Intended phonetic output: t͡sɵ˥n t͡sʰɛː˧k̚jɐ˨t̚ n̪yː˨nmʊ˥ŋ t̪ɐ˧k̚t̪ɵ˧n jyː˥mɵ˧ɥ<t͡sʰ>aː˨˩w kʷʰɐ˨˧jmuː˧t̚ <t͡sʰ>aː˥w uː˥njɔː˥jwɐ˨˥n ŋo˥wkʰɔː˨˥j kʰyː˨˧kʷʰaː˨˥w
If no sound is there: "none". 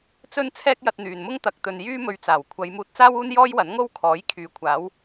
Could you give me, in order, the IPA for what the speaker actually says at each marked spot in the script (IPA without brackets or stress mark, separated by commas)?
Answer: t͡s, t͡s